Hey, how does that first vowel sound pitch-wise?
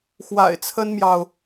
low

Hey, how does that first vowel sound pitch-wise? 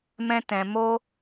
high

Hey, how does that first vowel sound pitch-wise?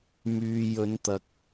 low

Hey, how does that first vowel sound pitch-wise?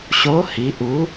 rising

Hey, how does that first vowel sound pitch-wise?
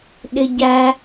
high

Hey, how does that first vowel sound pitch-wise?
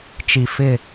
low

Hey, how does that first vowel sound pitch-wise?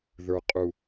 low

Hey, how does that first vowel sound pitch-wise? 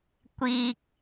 high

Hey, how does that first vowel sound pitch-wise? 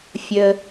low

